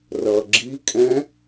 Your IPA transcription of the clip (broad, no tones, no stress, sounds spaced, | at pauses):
r ʌ ɡ͡ǁ i kʼ ɛ̃